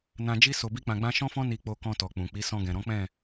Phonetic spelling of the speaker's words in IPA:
nã˧d͡ʒi˦ so˧bi˦k͡pã˧ɡ͡bã˦ ʃɔ̃˦fɔ̃˦ ni˧k͡po˧kɔ̃˧tɔ˨ k͡pũ˨k͡pi˨˦ sɔ̃˧ɡɛ̃˨ɾɔ̃˨˦k͡pɛ̃˦˨

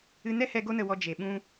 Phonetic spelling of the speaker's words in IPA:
ɨ˧nɛ˦hɛ˧ ɡo˦nə˧wɔ˧ d͡ʒe˨ɓũ˧

